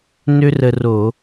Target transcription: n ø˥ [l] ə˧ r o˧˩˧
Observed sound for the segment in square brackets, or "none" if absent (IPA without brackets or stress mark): r